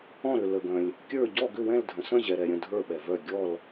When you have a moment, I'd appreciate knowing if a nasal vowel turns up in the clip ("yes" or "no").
yes